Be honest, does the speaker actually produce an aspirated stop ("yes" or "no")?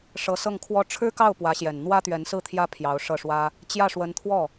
yes